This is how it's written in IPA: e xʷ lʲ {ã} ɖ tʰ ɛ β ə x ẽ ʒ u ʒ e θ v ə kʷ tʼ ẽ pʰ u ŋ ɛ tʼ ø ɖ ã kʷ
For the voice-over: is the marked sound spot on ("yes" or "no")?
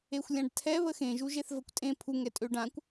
yes